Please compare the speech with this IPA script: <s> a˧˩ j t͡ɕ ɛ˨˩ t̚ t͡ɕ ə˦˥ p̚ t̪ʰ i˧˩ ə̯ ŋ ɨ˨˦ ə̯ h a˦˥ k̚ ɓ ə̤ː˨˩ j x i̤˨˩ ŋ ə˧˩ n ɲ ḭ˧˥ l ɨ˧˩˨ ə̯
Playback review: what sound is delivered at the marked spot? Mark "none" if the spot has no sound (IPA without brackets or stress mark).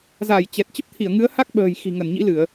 z